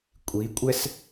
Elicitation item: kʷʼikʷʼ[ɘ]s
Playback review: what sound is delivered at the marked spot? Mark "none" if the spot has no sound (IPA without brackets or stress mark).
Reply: ɛ